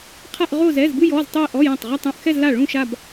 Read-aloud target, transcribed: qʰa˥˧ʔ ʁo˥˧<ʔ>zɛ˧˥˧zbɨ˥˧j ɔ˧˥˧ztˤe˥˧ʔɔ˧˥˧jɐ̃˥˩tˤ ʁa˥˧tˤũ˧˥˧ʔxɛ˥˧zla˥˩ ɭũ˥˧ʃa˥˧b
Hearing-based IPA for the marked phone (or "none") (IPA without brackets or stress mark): none